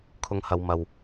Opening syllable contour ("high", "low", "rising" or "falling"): low